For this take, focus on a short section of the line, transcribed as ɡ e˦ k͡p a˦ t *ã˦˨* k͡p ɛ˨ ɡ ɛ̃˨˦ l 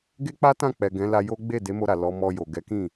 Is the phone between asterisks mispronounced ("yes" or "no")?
no